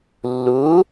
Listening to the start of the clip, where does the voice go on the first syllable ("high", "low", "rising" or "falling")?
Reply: rising